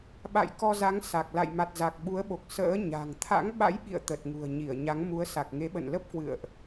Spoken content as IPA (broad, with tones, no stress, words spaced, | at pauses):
ɓa̰˧˨j kɔ˧za˨˦ŋ sa˨˩k̚ la̰˧˨jma˨˩t̚ za˨˩k̚ɓu˨˦ə̯ɓo˨˩k̚ sə̰ː˧˥ ɲa̤˨˩ŋ t̪ʰa̰˧˥ŋɓa̰˧˥jɓḭ˧˨ə̯ t̪ə˨˩t̚ŋṳ˨˩ə̯ ɲi˧˩ə̯ ɲa˨˦ŋmu˨˦ə̯ sa˨˩k̚ŋe˨˦ɓə̰˧˨nlə˦˥p̚ kwɨ̰˧˨ə̯ʔ